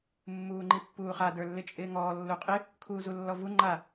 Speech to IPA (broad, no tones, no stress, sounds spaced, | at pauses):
mː uː ŋ͡ǃ i pː uː χ a d ə˞ lː ɪ t͡ʃʼ ɪː ŋ ɔː lː u qʼ ɪ | kʰ uː z u lː ɔ v u ŋ͡ǃ a